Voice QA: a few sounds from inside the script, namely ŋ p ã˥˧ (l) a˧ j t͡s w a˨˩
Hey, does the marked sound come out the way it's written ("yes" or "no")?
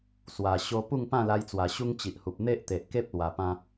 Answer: yes